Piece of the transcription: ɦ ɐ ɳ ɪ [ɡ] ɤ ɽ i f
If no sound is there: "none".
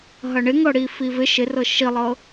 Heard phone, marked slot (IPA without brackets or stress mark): ŋ